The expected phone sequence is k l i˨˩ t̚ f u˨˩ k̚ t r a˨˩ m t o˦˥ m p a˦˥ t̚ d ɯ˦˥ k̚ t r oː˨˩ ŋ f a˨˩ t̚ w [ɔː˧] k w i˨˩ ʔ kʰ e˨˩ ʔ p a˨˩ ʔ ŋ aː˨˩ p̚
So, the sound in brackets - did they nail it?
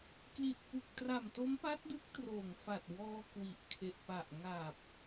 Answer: yes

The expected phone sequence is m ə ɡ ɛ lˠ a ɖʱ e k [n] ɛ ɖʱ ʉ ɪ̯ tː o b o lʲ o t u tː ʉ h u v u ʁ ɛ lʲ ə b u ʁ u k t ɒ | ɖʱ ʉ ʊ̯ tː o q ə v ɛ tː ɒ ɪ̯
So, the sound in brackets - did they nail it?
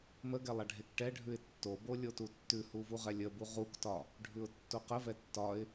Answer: no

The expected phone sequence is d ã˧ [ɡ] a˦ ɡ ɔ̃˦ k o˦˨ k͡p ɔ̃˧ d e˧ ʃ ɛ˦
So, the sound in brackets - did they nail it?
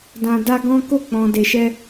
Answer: no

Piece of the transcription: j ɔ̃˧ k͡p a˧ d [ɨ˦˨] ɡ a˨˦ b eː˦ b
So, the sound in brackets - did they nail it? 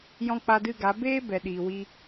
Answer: yes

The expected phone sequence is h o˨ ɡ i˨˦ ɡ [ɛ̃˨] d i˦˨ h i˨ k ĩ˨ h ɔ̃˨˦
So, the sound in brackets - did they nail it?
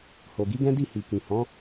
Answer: no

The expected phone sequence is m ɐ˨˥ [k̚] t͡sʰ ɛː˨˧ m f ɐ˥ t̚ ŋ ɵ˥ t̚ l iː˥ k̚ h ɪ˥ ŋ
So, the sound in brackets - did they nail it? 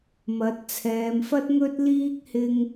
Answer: no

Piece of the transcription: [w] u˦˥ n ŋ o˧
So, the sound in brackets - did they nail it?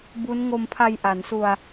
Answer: no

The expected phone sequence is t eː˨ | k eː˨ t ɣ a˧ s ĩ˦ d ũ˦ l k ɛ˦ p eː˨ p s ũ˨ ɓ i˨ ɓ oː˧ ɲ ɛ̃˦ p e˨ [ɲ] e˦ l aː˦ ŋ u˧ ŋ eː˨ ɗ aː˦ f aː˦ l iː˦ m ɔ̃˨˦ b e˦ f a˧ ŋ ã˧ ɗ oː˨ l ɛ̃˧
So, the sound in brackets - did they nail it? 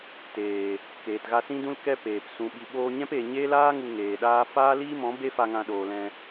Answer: yes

